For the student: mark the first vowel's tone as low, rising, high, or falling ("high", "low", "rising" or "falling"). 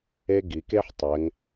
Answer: high